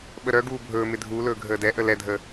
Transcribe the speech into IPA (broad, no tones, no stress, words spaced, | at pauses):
ɓəɾœɡuː bʱɵːmɪ dʱuːlɵː ɡʱəːdɛʔə lɛdʱə